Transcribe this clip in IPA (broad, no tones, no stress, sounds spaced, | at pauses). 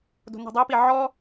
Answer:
d o̤ n e̤ dˤ o p i ʕ ɔ